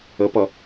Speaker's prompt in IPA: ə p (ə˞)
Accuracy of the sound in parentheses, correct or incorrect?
incorrect